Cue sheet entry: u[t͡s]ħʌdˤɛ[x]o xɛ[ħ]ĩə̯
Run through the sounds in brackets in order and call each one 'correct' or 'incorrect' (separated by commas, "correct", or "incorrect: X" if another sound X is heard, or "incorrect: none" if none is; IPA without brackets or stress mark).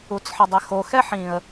correct, correct, correct